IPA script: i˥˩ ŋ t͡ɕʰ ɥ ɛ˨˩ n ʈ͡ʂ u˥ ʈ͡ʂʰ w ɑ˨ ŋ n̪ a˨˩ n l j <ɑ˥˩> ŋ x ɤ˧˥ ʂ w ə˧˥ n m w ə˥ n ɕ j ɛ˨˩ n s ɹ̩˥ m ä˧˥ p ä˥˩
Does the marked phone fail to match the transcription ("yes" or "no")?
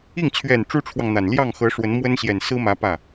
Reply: no